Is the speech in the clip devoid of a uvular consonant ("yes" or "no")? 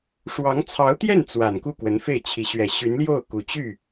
yes